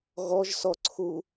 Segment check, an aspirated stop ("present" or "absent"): present